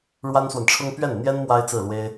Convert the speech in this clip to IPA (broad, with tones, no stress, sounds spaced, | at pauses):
ɻ w a˥ n s w a˨ n ʈ͡ʂʰ ʊ˥ ŋ p ɥ ɛ˥˩ n n̪ j ɛ˥ n m w a˥ ɪ̯ t͡s ɹ̩˥˩ l w e˥ ɪ̯